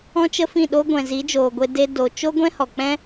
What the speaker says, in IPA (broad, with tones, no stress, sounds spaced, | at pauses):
ɔ̃˦ t͡ʃ ə˦ f ĩ˦˨ ɗ o˦ ɡʷ ɛ̃˨ z i˨˦ d͡ʒ oː˨ ɡʷ e˧ d e˦ d o˧ t͡ʃ o˦ ɡʷ ɛ̃˦ h ɔ˨ k͡p ɛ̃˦